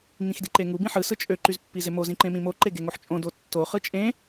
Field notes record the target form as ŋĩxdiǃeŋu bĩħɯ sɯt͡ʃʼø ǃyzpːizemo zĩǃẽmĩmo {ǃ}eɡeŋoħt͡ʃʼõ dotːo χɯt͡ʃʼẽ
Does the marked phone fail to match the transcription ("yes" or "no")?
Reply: no